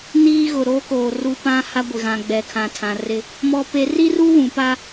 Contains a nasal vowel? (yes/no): yes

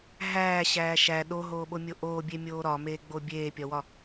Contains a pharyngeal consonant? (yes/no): no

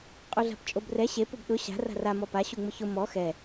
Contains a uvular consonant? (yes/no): yes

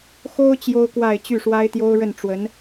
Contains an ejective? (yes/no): no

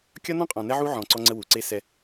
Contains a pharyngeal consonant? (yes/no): yes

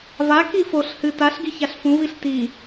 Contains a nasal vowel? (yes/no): yes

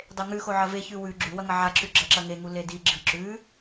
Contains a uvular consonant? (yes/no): no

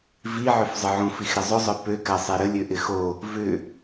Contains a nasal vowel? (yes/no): yes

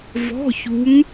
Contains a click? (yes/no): no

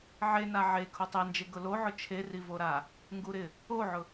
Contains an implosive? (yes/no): no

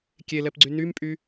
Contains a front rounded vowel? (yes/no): yes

